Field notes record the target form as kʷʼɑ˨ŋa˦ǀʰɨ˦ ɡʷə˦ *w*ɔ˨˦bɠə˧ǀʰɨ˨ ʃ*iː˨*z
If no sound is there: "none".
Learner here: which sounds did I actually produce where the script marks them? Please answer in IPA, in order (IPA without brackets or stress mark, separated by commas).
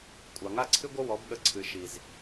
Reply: w, i˨